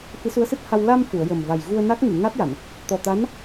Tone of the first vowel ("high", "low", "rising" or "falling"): rising